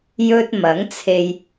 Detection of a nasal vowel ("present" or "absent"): absent